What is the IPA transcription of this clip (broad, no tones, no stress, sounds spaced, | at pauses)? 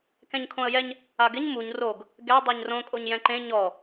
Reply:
k ɛ̃ ɲ kʰ õ ə̯ j ɛ ɲ | a ɡ ɪ ɲ m u ɲ r o ɡ | ɡ ɛ dˤ ɛ ɲ r õ kʼ o ɲ j ɛ̃ ǃ ẽ ɲ ɔ